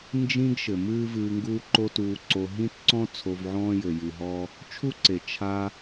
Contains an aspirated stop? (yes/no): yes